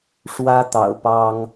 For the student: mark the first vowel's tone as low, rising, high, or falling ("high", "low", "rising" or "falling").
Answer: high